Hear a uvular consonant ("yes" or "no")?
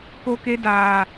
no